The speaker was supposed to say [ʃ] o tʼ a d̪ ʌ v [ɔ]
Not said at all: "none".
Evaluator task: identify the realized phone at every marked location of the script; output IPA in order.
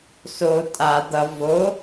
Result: s, o

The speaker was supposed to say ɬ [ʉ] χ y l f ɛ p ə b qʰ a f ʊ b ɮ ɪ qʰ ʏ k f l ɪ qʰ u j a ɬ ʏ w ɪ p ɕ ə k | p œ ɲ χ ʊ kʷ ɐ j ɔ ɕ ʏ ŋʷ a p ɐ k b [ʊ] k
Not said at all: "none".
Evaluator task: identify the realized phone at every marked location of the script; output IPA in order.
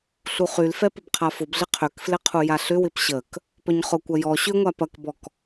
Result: u, ɔ

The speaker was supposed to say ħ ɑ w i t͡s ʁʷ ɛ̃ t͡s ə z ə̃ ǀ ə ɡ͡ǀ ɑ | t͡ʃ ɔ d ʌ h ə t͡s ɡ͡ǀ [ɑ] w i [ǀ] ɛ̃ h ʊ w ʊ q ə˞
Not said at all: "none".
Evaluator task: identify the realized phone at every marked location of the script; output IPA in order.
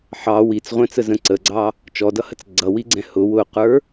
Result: ʌ, ɡ͡ǀ

